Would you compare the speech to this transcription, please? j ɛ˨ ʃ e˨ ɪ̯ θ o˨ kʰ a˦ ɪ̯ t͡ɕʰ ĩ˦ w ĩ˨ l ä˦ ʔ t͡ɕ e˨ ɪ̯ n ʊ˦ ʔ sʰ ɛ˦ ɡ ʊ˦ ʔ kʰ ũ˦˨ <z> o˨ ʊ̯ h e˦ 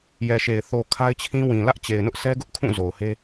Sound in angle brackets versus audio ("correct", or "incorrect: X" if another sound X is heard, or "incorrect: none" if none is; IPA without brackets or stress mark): correct